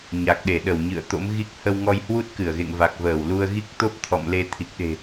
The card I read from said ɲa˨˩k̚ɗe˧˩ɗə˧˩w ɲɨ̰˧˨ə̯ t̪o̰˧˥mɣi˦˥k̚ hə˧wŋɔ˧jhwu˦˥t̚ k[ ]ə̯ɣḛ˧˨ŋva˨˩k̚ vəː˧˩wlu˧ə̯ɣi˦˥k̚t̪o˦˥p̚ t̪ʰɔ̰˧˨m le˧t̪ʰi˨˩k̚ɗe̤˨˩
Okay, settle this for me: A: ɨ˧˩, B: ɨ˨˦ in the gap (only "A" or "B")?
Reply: A